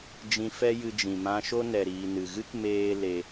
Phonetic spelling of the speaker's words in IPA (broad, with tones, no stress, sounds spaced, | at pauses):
d͡ʒ ĩ˧ f ɛ˦ j ɨ˧ d͡ʒ ĩ˨ m ã˧ ʃ o˦ n ɛ˨ ɾ iː˨ n ɨ˨ ɣ ɨ˦ k m eː˦ l e˧